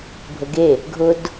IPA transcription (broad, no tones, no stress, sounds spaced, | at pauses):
bʱ ə ɡ e | ɡʱ ʊ d